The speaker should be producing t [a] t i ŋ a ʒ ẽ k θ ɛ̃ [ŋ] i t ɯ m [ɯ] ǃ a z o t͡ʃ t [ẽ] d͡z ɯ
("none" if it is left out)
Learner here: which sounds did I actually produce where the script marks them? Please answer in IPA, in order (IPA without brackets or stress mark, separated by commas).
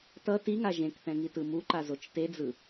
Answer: ʌ, ŋ, u, e